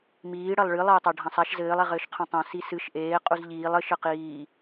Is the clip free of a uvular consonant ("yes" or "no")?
no